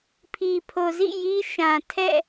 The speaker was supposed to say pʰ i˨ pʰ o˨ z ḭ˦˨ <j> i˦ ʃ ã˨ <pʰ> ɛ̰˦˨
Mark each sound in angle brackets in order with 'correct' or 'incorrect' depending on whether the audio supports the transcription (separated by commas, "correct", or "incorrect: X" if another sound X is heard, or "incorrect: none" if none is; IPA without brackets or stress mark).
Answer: correct, incorrect: tʰ